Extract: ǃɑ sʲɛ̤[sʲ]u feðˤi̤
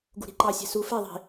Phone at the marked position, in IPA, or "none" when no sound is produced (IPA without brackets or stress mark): s